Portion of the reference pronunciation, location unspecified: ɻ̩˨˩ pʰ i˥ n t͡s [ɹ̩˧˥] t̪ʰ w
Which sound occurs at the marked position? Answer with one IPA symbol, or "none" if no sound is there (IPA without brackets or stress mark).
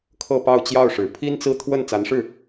ɹ̩˥˧